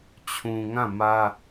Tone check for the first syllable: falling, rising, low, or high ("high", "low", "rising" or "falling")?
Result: low